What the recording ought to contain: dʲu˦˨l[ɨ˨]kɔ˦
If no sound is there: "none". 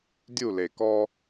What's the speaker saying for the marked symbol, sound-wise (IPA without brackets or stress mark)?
e˨